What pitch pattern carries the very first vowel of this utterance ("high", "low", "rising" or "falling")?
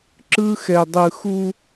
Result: high